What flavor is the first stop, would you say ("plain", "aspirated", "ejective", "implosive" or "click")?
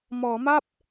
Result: plain